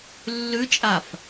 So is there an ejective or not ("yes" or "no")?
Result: yes